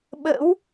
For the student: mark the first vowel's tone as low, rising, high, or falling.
rising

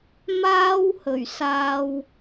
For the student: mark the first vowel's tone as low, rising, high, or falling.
high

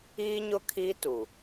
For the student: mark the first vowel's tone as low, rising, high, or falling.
high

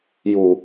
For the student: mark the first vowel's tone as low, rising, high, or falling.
low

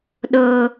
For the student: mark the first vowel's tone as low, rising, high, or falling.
high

